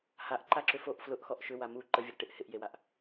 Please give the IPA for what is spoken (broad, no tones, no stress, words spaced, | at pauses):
haʔǃaǁʏ foʔ flʊʔxɔʔ ʃʏwa mu ǃəvʲʊɾəʈɪʔ hɪʔjewaʔ